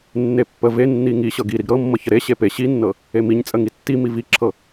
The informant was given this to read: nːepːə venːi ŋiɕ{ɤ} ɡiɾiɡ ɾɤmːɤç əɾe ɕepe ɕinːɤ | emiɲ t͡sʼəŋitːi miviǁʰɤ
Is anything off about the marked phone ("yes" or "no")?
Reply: no